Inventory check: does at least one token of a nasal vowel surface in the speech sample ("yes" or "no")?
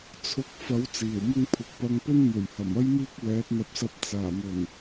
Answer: no